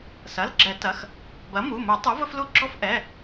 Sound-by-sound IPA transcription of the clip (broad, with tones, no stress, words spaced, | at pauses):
sɐ˩˧˩lɡ͡ǁɛ˨˩˦ tɐ˩˧˩x | bɐ˩˥mu˩˧˩mu˨˩˦ tˤu˩˥və˦flu˦ ɡ͡ǁɔ˦fʔɛ˩˧˩